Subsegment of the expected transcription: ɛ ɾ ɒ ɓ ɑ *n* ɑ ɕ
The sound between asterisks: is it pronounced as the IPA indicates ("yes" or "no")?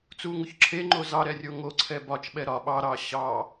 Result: no